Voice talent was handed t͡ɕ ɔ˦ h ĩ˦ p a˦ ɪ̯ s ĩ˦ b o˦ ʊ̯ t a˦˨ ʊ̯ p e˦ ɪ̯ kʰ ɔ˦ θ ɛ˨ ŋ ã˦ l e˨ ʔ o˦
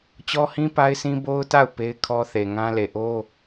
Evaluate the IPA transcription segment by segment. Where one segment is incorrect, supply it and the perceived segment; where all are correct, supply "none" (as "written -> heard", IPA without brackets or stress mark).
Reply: ɛ˨ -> e˨